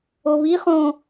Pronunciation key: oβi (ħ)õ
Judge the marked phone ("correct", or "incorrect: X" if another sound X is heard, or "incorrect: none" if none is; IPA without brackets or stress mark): incorrect: χ